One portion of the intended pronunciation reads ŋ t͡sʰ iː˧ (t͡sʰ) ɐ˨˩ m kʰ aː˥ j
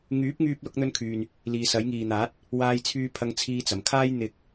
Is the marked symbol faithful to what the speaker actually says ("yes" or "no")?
no